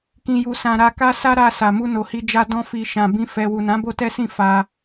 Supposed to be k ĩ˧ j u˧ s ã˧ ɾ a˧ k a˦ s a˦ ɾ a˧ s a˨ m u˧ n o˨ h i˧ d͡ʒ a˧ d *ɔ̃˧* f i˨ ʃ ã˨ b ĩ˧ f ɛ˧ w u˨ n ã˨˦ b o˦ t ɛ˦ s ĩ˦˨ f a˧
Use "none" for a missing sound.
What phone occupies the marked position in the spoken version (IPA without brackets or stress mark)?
ɔ̃˧